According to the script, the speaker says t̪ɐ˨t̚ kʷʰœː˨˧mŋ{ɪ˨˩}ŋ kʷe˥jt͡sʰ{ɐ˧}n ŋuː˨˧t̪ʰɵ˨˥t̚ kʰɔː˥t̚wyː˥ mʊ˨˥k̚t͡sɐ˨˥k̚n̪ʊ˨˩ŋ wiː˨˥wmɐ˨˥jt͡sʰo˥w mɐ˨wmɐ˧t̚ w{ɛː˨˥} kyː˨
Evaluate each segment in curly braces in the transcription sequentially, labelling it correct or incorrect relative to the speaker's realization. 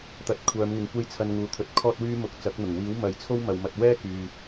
incorrect: ɪ˨, correct, incorrect: ɛː˥

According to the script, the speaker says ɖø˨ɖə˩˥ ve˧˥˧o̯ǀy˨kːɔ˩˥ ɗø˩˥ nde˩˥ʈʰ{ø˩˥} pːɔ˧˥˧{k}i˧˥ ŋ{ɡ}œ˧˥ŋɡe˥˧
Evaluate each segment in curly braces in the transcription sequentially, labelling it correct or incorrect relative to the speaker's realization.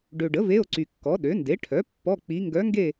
incorrect: œ˩˥, incorrect: k͡p, correct

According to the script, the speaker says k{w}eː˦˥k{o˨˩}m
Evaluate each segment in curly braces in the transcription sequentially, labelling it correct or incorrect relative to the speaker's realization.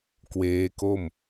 correct, incorrect: o˥˩

